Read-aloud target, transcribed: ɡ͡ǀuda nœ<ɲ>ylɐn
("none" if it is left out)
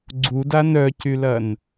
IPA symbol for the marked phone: c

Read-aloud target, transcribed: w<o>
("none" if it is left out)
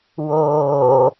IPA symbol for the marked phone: oː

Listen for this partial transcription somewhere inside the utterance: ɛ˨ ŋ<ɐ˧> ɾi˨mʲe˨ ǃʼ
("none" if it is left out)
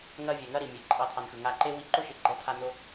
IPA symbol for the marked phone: ɐ˦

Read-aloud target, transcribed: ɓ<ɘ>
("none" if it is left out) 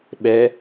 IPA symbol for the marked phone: ɛ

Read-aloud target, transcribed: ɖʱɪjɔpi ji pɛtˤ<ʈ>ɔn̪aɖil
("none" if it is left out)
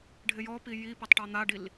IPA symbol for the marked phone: ʈ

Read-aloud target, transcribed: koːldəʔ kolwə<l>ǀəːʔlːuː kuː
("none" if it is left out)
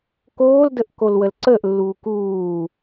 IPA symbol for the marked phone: l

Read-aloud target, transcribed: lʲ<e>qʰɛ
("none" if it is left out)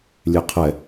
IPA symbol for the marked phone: e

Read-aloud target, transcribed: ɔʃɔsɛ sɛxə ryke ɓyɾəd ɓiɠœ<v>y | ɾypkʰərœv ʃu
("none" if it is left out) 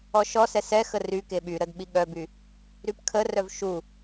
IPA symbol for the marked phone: b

